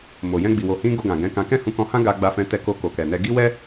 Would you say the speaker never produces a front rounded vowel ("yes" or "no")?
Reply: yes